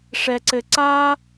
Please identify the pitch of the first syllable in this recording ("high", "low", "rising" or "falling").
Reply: low